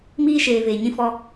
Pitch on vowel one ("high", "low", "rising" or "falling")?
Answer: high